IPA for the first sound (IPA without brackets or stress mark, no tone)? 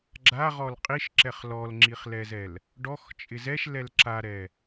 ɡ͡ǁ